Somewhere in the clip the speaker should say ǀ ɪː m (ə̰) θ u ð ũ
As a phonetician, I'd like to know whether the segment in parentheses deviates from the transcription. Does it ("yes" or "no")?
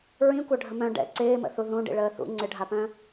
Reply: no